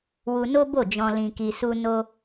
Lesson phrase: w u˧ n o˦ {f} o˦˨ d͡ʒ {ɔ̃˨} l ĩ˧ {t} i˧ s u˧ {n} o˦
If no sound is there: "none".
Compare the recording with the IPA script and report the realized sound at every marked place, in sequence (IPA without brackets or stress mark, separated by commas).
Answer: b, ɔ̃˧, k, n